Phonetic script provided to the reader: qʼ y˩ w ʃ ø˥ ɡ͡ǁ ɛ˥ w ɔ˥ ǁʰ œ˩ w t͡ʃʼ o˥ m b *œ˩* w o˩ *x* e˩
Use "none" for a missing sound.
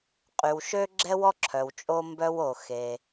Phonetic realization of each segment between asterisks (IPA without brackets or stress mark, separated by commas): œ˥, x